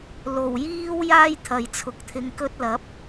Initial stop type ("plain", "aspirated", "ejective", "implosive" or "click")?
aspirated